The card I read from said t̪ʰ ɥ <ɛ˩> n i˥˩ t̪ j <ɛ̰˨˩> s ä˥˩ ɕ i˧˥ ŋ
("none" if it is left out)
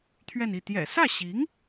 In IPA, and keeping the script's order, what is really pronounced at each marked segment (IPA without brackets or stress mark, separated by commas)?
ɛ˥˧, ɛ̰˨˩